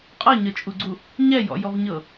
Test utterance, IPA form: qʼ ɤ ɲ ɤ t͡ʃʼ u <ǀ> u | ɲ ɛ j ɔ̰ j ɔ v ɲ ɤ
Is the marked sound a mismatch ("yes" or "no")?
yes